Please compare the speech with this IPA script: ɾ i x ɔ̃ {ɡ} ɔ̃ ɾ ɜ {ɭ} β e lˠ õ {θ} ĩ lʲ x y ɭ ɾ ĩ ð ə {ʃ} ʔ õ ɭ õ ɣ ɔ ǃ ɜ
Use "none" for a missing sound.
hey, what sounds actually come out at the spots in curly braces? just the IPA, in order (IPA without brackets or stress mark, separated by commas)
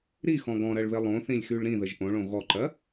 ɡ, ɭ, θ, ʒ